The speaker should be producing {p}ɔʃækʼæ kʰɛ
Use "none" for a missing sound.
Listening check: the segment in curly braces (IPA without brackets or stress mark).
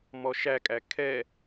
m